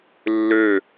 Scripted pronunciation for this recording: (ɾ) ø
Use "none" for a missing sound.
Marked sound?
lː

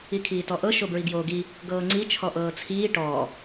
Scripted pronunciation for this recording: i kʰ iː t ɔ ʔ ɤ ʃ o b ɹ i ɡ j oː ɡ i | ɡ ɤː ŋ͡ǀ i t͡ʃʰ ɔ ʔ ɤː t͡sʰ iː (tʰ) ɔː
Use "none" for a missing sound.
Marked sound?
ʈ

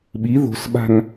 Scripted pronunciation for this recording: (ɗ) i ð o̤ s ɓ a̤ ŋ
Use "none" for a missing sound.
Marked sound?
ɓ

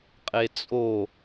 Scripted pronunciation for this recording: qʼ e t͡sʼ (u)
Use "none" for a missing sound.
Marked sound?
o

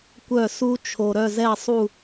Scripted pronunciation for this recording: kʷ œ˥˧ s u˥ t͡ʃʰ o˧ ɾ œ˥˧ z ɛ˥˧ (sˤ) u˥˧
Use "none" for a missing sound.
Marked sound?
sˤ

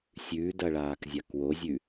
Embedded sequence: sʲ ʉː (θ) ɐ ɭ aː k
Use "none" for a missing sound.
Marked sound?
d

